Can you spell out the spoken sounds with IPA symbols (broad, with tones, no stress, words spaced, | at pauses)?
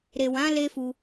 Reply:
ɾe˨wã˨˦ le˦fu˧